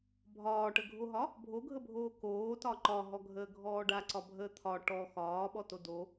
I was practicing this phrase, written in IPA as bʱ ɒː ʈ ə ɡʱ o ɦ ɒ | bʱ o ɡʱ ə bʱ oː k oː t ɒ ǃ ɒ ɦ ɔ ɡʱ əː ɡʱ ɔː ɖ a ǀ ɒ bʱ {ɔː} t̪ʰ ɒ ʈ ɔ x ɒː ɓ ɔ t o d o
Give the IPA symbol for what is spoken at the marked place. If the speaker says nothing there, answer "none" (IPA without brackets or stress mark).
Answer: əː